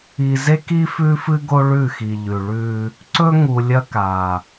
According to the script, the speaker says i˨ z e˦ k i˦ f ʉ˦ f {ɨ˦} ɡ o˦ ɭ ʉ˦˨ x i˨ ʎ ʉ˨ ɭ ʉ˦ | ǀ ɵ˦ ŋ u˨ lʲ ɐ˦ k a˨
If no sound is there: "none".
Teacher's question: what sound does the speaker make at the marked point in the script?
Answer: ɨ˦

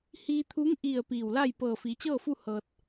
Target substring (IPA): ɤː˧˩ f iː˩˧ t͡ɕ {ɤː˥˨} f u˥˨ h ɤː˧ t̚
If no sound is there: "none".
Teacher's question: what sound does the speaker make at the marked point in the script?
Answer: ɤː˥˨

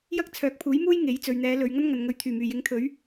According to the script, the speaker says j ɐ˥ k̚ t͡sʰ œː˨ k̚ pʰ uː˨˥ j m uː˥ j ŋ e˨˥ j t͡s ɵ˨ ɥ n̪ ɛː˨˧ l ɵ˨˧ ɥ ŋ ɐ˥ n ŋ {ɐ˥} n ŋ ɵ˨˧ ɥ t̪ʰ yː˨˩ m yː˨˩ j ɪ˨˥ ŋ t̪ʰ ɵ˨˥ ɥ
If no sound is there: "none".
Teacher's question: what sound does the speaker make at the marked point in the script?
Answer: ɐ˨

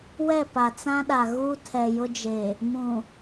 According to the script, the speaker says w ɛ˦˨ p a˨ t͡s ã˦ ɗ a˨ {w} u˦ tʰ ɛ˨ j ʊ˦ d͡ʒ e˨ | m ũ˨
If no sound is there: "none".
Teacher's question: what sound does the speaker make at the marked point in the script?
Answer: ɣ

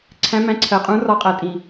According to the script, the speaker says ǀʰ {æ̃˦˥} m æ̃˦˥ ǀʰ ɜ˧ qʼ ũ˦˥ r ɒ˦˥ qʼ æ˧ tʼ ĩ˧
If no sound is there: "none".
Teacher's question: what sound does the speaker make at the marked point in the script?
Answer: æ̃˦˥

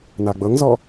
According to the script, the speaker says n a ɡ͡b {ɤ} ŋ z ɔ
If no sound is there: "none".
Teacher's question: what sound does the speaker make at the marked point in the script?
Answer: ɤ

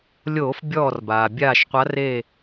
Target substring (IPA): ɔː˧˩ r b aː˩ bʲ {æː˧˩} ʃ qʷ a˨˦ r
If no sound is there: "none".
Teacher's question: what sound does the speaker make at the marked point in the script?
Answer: aː˧˩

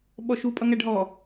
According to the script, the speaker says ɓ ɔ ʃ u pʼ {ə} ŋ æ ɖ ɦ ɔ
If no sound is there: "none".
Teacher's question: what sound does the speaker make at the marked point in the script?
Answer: ʌ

